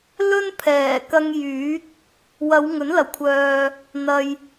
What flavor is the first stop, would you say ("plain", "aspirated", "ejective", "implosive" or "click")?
aspirated